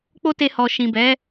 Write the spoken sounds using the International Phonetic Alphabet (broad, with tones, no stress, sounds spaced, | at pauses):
k͡p o˦ t e˧ h ɔ˨ ʃ ĩ˨ b ɛ˨˦